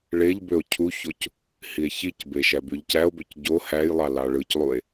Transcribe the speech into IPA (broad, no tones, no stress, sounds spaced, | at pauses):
ɭ e ʎ b ø o̯ cʰ u ç o c | h i e̯ ç i c b e ʃ æ b y ʎ c æ o̯ b ø c ɟ o h æ j lˠ ɑ l ɑ ɭ ɯ c lˠ u e̯